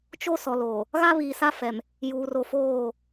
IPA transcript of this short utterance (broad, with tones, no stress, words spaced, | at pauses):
t͡ʃo˦ sɔ˨loː˨ | ɣa˦βiː˨sa˦fɛ˨m | juː˨ro˨foː˦˨